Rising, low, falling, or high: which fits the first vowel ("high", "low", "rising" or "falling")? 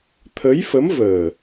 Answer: rising